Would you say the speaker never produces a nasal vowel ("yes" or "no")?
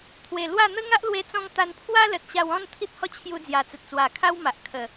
no